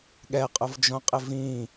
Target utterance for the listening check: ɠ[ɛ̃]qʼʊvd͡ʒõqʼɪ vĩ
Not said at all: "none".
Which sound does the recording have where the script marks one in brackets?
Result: ɛ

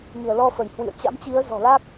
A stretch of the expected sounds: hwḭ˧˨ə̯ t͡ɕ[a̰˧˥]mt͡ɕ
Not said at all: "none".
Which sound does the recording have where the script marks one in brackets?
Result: a̰˧˥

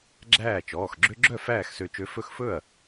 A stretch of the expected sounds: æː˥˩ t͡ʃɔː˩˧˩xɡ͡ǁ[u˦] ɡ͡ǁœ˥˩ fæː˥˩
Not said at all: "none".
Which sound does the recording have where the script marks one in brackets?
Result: ø˦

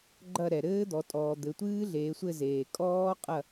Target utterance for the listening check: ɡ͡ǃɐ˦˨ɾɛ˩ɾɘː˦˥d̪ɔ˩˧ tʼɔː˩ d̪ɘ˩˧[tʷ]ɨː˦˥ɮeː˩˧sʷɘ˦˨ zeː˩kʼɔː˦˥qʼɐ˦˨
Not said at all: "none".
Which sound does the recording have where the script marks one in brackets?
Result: tʷ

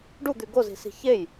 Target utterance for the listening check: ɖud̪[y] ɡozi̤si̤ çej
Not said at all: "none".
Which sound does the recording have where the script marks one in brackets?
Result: y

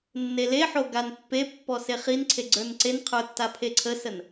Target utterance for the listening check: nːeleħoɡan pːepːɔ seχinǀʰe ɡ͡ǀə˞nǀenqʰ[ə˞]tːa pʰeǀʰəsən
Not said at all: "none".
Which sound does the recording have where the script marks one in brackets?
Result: ə˞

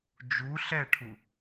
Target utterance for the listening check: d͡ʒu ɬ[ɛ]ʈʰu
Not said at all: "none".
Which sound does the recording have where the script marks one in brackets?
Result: ɛ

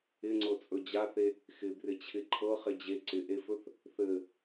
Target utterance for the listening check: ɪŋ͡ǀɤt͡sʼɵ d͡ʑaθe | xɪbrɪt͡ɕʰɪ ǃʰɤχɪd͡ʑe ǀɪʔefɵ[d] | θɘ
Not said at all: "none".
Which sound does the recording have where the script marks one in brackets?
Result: θ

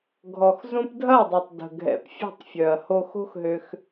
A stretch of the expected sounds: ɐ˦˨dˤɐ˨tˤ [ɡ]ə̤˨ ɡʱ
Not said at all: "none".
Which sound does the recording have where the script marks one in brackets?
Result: d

